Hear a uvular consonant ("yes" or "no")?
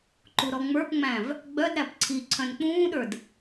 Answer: no